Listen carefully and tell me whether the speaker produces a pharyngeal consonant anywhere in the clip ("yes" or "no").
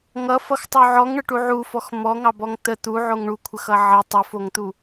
yes